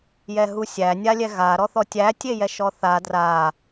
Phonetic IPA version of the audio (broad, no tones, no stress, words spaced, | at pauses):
jɛɦusʲæ nʲalʲɛɣa ɾɔθɔtʲæ tʲejɛʃɔθa dra